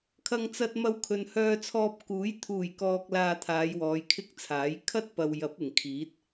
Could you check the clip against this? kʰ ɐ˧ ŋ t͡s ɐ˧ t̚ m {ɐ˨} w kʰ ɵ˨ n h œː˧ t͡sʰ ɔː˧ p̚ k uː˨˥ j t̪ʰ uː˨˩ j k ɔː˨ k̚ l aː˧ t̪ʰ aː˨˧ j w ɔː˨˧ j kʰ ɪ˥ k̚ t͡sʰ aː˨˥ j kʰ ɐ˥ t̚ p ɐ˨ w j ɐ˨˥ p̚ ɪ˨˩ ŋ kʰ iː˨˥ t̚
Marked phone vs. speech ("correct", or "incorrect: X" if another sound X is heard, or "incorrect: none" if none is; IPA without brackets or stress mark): incorrect: ɐ˧